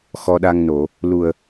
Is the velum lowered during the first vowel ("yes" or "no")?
no